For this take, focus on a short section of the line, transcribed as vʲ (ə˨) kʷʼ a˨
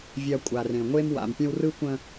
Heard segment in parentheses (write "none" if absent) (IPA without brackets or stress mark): a˨